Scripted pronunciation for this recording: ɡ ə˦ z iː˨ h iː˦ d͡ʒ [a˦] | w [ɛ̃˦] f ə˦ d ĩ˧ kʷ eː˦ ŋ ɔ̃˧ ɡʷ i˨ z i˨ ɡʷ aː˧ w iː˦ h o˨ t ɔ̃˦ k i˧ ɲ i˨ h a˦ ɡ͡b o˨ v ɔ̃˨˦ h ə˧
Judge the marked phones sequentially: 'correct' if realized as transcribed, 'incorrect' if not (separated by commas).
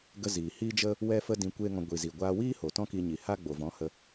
incorrect, incorrect